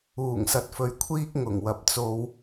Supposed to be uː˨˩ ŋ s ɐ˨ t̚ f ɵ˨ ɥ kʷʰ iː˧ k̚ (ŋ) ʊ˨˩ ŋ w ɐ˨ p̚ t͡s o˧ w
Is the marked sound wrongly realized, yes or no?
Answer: no